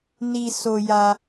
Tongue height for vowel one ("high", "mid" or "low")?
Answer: high